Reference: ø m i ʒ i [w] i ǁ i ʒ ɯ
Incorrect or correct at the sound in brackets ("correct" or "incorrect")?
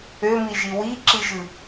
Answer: correct